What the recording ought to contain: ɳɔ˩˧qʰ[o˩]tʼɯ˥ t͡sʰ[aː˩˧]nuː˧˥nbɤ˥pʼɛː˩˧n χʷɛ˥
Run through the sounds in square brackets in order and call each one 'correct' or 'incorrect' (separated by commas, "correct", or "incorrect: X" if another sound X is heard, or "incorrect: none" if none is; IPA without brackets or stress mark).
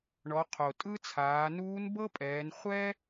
correct, correct